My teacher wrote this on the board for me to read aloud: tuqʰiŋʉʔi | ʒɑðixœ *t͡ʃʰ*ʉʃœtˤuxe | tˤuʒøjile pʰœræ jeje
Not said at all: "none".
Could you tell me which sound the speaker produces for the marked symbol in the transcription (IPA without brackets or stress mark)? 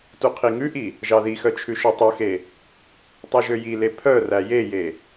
t͡ʃʰ